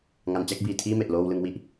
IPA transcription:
ŋ a˩˦ n t͡ɕ a˦˥ k̚ b iː˨˩ tʰ iː˥˩ m e˨˩ ʔ l oː˧ w l ɯ˧ ŋ w i˥˩ ʔ

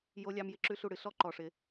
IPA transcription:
j o˧ lʲ ɑ˧ m j ɪ˧ ǁ ʉ˦ ɬ u˦˨ ɽ ɨ˧ ɬ ɔ˦ ǃ ɔ˧ ʂ ɪ˧

